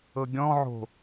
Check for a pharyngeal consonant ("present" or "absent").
present